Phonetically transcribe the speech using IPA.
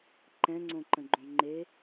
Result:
ǃ ɛ̃ ŋ͡ǀ õ ǃ ə̃ ɡ͡ǃ õ ŋ͡ǃ e

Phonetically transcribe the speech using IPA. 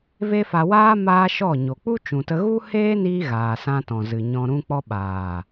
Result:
v e˦ f a˧ w aː˦ m aː˦ ʃ ɔ˦˨ ɲ o˨ k͡p u˦ t͡ʃ ũ˨ t ə˧ ɣ u˦ h eː˦ n iː˧ ɣ aː˨ s ã˧ t ɔ̃˨ z ɨ˨ ɲ ɔ̃˧ ɾ ũ˦ k͡p ɔ˧ ɓ aː˨

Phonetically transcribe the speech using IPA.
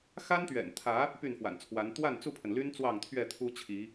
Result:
x a˦ n t̪ ɥ ɛ̰˨˩ n t̪ʰ ä˨˦ | p y˥˨ n f w a̰˨˩ n t͡sʰ w a˨˦ n t̪ w a˥˨ n t͡s u˥˨ pʰ ə˩ n l y˦ n t͡s w ɑ˥˨ ŋ t̪ʰ ɥ ɛ˥˨ t̪ʰ u˦ t͡ɕʰ i˨˦

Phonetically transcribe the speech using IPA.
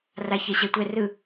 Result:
r a ç ɛ ɕ ɛ tʷ ɛ r ɯ

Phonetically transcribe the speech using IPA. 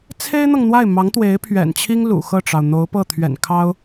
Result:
t͡sʰ e˥ ɪ̯ n̪ ɤ˨ ŋ n̪ w a˥˩ ɪ̯ m ɑ˧˥ ŋ t̪ w e˧˥ ɪ̯ pʰ ɥ ɛ̰˨˩ n t͡ɕʰ i˥ ŋ l ṵ˨˩ x ɤ˥˩ ʈ͡ʂ ɑ˩ ʊ̯ n̪ o˧˥ ʊ̯ p ɤ˥˩ t̪ʰ ɥ ɛ̰˨˩ n kʰ ɑ˥ ʊ̯

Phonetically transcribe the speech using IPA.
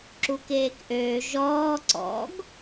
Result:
ǁ u k eː k ʔ øː ʒ ɔː ǀ ɔ̰ ɡ

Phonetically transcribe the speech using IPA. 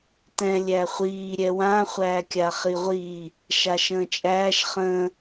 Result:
t ɛ̃ lʲ æ χʷ iː ɾʲ ɛ w ã χʷ æː kʲ a χ i ʁʷ i | ʃ a ʃ ə̃ː t͡ʃʼ æː ʃ χ ə̃

